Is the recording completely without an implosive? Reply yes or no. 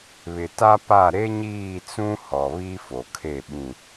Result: no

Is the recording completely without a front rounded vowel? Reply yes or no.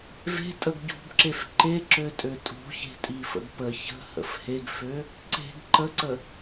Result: no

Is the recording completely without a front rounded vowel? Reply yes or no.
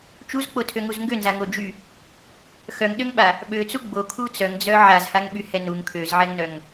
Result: no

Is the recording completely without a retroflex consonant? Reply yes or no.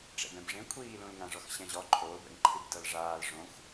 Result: no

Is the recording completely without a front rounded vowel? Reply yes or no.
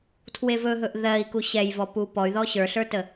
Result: no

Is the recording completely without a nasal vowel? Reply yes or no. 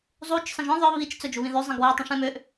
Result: no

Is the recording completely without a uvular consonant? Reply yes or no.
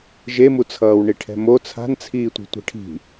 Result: yes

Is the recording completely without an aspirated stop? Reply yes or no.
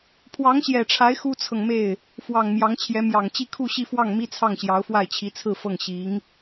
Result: no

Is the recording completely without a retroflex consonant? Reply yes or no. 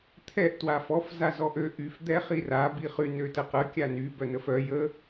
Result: yes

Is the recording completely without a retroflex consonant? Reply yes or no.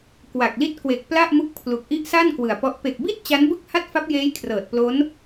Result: yes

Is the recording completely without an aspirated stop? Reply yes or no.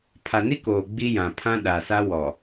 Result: no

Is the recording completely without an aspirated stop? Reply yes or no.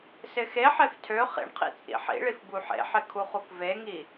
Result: no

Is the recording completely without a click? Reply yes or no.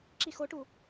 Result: no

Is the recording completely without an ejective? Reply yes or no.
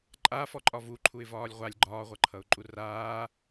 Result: no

